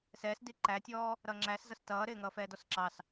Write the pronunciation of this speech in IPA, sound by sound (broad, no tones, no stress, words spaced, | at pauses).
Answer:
sɛːsdi ǃætʲɔː | ɾʌŋ͡ǁæszʌs tʌːɾɪː ŋʌːfɛːdɔsǁɑs